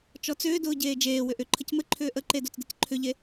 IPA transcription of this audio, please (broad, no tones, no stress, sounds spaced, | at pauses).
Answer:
t͡ʃ ɔ t͡s ʏː d ʊː ɟ eː d͡ʒ eː w ʏ ʔ ʏ ǃʰ ə c m ɘ ǃʰ ʏː ʔ ə ǃ e d o t͡s d ɘ c ǃʰ ʏ ʎ e